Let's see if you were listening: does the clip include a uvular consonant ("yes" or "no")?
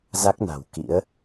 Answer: no